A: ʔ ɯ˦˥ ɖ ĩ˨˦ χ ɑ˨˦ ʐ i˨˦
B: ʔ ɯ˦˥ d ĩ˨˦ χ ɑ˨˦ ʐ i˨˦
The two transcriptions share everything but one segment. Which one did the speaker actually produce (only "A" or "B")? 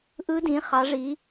B